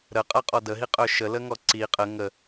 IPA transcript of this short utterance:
ɾ ə qʼ a qʼ ɔ d ə ɦ i qʼ œ ʃ ə l ə ŋ ɔ ǀ i qʼ ə ŋ ə

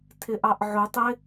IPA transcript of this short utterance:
tʰ ɪ ʔ ɑ ʔ ʕ ʊ tˤ ɪ

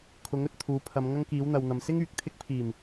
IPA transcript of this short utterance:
kʰ ʊ˨˥ ŋ ɵ˨ t̚ t̪ʰ uː˨˥ pʰ ɐ˨˧ m ŋ ɐ˥ ŋ k iː˨˥ w n̪ ɐ˨ w n̪ ɐ˨ m s ɪ˥ ŋ yː˨ k̚ t̪ʰ ɪ˧ k̚ pʰ iː˨˩ m

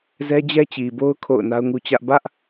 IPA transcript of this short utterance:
z ɛ˦ d͡ʑ ɛ˦ t͡ɕ i˨ b o˦ ʊ̯ kʰ o̰˦˨ ʊ̯ n a˦ ʊ̯ ŋ u˦ t͡ɕ ä˦ ʔ b ä˦ ʔ

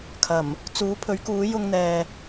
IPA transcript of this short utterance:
kʰ ɐ˨˩ m | t͡s uː˨˥ pʰ ɵ˨˥ ɥ k uː˨˥ j ʊ˧ ŋ n̪ ɛː˨

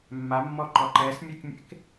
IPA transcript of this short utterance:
mː a mː ɔ ǃ ɔ ǃ ɛ s mʲ u k mʲ ḛ k

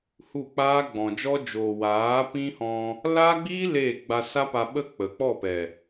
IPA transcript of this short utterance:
h u˦˨ k͡p aː˦ ɡ͡b ɔ̃˨ d͡ʒ ɔ˦ d͡ʒ oː˨ w aː˨˦ p ĩ˦ h ɔ̃˧ | l aː˦ ɡ͡b iː˦ l eː˦˨ ɡ͡b a˧ s a˦ p a˧ ɓ ə˦ k͡p ə˨ k͡p ɔ˦˨ p ɛ˨

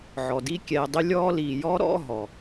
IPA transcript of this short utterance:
ʕ ɔ˩ d i˦ kʲ ɛː˨ dˤ ɪ˦ lʲ ɔː˦ l iː˨ j ɔ˥ ɾ ɔ̰˦ ɦ ɔ˩

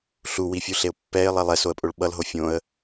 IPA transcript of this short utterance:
ɬ u w i fʲ u ɬ e ʊ̯ pː ɛ ɪ̯ lˠ ɛ lˠ ɛ s o ə̯ pʼ o ɭ ɓ ʌ l ɦ o fʲ õ ə̯

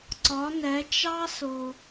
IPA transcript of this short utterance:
ǀ ɒ˧˥ n ɛ˧˥ t͡ʃ ɑ˥ s ʊ˧

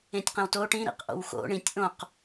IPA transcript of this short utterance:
ẽ tʲ q ẽ w t o ʈ ĩ ɾ ḭ q ʔ o̰ w x o̰ ɳ ĩ tʲ ʔ õ q

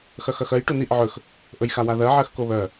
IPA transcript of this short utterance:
x œ x œ x œ j ʈ u n i ʔ ʕ ɵ x | ʔ ɵ j x a w a ð ɜ ʕ ɜ x k o β œ

